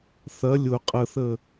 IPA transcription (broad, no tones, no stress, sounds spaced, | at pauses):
θ ɐ lʲ ʊ qʼ ə θ ə